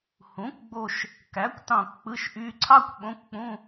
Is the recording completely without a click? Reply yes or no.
no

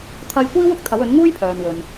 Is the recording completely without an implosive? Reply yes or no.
yes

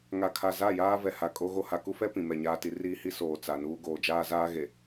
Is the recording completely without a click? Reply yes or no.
yes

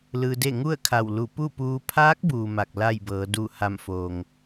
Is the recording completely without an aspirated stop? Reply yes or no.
no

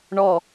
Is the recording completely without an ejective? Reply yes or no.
yes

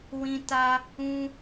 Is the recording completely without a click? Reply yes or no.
yes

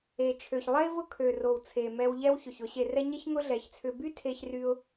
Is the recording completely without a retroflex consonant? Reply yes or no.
yes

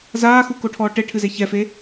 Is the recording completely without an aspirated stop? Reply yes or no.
no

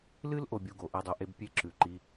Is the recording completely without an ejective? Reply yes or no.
yes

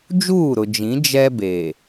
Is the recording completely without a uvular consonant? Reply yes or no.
yes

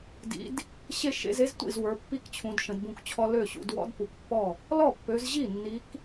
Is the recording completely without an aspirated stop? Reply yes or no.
no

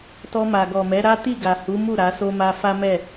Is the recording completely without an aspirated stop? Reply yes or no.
yes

